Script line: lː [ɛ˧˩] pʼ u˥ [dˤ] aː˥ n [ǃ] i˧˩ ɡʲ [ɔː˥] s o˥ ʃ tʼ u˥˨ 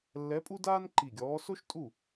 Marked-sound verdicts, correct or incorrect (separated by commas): incorrect, incorrect, correct, incorrect